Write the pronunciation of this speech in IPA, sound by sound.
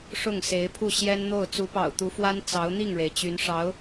ʂ ʊ˥˩ ŋ s e˧˥ ɪ̯ pʰ u˥˩ ɕ j ɛ˥ n n̪ o˥˩ ʊ̯ t͡s u˧˥ p ɑ̰˨˩ ʊ̯ t̪ u˧˥ f w a˥ n t͡s ɑ˧˥ ʊ̯ n̪ i˥˩ ŋ ɻ e˩ ɪ̯ t͡ɕ y˧˥ n ʂ ɑ˧˥ ʊ̯

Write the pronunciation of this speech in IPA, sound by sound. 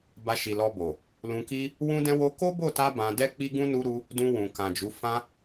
b a˧ ʃ i˨ l ɔ˧ b o˨ | l ũ˧ k i˦ | w ũ˦ d ɛ̃˦ w o˦ k o˦ b o˦˨ t a˧ b ã˧ d ɛ˦ k͡p i˦ ɡ ũ˦ n u˦ ɾ u˦ | d ũ˧ w ũ˨ k ã˨ d͡ʒ u˨˦ f ã˦

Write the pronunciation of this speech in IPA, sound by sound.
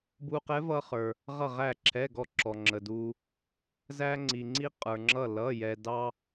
b u˧ q ɛ˧˥ v ʌ˧ χ ə˞˩ | ʁ ʌ˧˩ ʁ æ˧˩ ǁʰ ɛ˩˧˩ ɡ ɔ˧˩ ǁ ɔ˩ ŋ͡ǁ ə˩ d u˩ | z æ˧ ŋ͡ǀ i˩ ŋ͡ǀ i˧ qʼ ə˞˩ ŋ͡ǁ ʌ˧˩ l ʌ˩˧˩ j ɛ˩ d ɑ˧

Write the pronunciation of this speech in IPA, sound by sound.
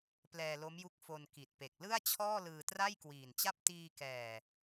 p l ɛː˧ l o˦˥ m j u˦˥ k̚ f o˧ n k i˨˩ t̚ p e˨˩ k̚ l ɯ˥˩ a̯ t͡ɕʰ ɔː˥˩ l ɯː˧ t r a˥˩ j k w iː˨˩ n t͡ɕ a˥˩ p̚ t iː˧ k ɛː˨˩

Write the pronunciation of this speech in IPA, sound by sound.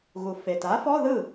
ɣ u˨˩ f e˨˩ t a˨˥ f ɔ˧˥˧ ð ɯ˥˩

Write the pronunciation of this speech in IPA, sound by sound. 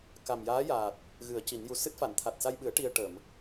k a˨˩ m j aː˧˥ j aː˨˩ t̚ | ɣ ɨ˨˩˦ ə̯ c i˨˩˦ n j u˧ s ɨ˦˥ t̚ f a˨˩˨ n t̪ʰ a˨˩ t̚ s a˧ j ɓ ɨ˨˩˦ ə̯ ʈ i˧ ə̯ ʈ ə˨˩˨ m

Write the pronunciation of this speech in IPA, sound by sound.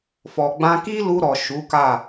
f ɔ˨ ɡ͡b ã˧ k i˦ l u˧ ɾ ɔ˨ ʃ u˨˦ k a˦˨

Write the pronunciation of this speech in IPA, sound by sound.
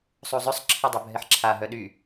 sˤ u zˤ ø sˤ ǁʰ ɛ dˤ œ bʱ ɛ ħ ǁʰ a ɦ œ ɗ y

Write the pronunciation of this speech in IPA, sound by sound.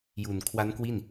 j u˨˩ n kʰ w a˦˥ n k w i˥˩ n

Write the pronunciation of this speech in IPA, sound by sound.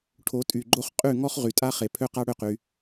ʈʰ o˨˦ tʼ y˨ ɡ͡ǃ o˦ χ qʼ y˦˨ ŋ ɔ˦ χ ʁ y˨ tʼ a˦ χ e˨ pʰ ø˦ q a˦ ɽ ø˦˨ q y˧

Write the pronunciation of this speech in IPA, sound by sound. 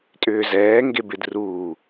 tʼ ʏː z ɛː ŋ ɡ e b ɪ d r uː

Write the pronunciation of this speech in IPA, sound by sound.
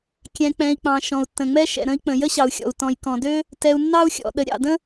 kʲ ɛ̃˩ k͡p ɛ̃˩ i̯ k͡p ɑ̃˩ ʃ ɔ̃˩ u̯ tː ə̃˩ ŋ͡m ɛ˥ ʃ ɛ̰˩ ɾ ə̃˥ i̯ k͡p ə̃˩ j ə˥ ɕ ɑ˩ u̯ xʲ ɔ̰˩ u̯ t ɔ̃˩ j k ɔ̃˩ d ø˥ | t ɛ˩ u̯ nː ɑ˥ u̯ xʲ ɔ̰˩ ɗ ə˩ ɾʲ ɑ̰˩ d ə̃˥

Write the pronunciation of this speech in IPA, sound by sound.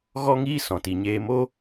ɣ ɔ˦ ŋ iː˦ s ɔ̃˨ t i˨ ɲ eː˧ m o˦

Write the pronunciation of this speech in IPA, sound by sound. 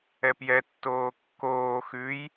ɛ p j ɛ tː oː kː oː x ʉ j

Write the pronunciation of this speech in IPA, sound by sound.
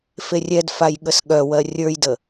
f e rʲ ɛ d f a j ɠ ə s ɠ œ w ɜ rʲ ə˞ j d ə

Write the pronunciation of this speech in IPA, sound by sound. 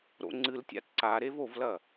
ɾ o̰ ŋ͡ǀ ɨ l tʲ a̰ t ǀ a ɾ e v o v l ɐ

